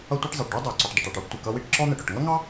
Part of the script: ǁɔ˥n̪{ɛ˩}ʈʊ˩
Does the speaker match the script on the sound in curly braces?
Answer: yes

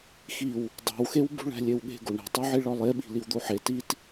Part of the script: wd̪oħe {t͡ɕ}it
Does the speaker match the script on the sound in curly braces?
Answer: no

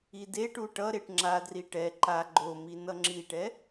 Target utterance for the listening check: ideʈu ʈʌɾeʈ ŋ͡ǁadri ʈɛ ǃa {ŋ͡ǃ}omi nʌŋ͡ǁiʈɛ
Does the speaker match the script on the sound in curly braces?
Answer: no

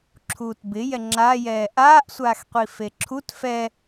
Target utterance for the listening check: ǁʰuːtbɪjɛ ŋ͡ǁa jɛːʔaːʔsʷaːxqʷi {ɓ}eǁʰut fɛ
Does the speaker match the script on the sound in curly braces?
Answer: no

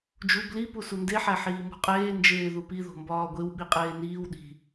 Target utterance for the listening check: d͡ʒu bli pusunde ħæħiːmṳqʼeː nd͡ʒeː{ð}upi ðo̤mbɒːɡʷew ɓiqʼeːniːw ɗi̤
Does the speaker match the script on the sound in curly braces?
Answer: yes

